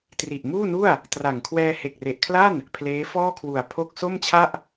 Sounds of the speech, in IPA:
t r i˨˩ ʔ m uː˥˩ n u˥˩ a̯ | t r a˨˩ ŋ kʰ w ɛː˧ h e˨˩ k̚ r e˨˩ ʔ kʰ l a˥˩ n | pʰ l eː˦˥ f ɔː˥˩ kʰ w u˨˩ a̯ pʰ o˥˩ k̚ s o˥˩ m t͡ɕʰ a˥˩ ʔ

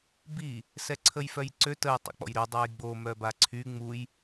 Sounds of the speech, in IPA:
b i | s ɛ ǀʰ ə j f œ j ǀ ø t ə j tˤ ə̰ k͡p ɔ̰ j ɾ y dˤ a j ɡ͡b o m œ b a ǀʰ y ŋ͡m u j

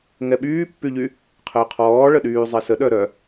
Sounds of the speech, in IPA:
ŋ ɛ ɓ yː pː y ʎ y | qʰ əː qʰ ɔː ɭ ə ɗ yː zˤ e s ə ɗ œ ɾ œ

